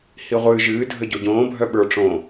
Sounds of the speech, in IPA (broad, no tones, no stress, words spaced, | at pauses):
hiʁʷɨː ʒɨː dʱəɟoɟõː bʱœɓə˞ ʈ͡ʂõ